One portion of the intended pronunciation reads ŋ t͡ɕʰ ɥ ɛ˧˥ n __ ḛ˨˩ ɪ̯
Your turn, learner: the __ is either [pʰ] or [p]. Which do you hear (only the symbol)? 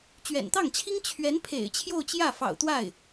pʰ